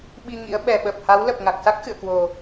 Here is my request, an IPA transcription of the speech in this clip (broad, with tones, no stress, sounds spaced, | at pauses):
ɓ i˧ ŋ ḭ˧˥ ə̯ ɓ ɛ˨˩ ɓ ə˨˩ p̚ h a˨˦ w l ə˨˩ p̚ ŋ a˨˩ k̚ s a˦˥ k̚ x ɨ̰˧˨ ə̯ k w o˨˩